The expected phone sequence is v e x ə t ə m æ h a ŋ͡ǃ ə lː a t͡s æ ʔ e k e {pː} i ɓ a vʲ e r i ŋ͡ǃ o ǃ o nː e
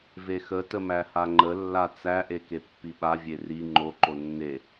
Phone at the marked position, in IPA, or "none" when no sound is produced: pː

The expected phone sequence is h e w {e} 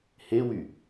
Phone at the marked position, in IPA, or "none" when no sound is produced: y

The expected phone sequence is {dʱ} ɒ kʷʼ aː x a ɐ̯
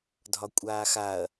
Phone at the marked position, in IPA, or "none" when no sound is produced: dʱ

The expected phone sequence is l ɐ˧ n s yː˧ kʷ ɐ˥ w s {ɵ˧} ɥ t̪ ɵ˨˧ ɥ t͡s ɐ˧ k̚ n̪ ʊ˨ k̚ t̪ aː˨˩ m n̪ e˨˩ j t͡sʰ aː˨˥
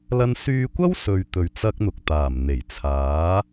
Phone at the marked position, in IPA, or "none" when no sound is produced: ɵ˨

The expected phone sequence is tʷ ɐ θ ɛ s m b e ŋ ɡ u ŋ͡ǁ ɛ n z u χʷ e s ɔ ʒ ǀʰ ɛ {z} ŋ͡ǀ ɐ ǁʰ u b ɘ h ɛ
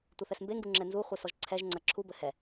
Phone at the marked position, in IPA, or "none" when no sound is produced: ʒ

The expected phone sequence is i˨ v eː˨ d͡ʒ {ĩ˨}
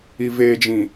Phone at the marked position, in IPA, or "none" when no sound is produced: ĩ˨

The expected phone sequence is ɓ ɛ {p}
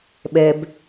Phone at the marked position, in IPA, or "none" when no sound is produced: b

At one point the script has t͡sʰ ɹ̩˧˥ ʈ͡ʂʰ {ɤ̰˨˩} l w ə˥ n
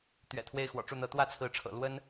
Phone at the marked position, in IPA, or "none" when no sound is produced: ɤ̰˨˩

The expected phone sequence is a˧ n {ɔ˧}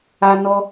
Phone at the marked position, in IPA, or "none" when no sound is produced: ɔ˧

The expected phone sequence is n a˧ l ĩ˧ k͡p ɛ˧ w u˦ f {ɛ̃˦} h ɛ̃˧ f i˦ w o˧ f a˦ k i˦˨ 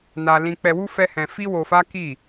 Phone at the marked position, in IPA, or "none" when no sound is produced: ɛ˦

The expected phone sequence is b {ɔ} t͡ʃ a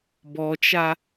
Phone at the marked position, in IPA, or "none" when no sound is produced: ɔ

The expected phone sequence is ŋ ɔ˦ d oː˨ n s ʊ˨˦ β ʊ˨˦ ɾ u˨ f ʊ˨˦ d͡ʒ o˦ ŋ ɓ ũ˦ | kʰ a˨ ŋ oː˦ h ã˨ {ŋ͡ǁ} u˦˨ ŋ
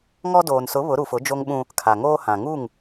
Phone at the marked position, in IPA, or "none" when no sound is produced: ŋ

